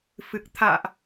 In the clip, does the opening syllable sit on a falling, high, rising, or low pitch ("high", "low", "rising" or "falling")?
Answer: low